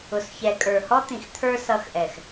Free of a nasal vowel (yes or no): no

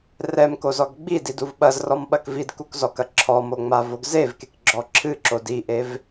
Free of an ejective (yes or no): yes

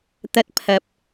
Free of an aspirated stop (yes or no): no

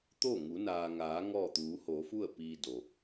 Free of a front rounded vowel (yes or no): yes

